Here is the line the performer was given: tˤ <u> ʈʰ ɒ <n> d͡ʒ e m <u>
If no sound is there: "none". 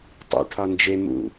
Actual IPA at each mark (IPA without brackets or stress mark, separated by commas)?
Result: ṵ, n, ṵ